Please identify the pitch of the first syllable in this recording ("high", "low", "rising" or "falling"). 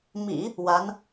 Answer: low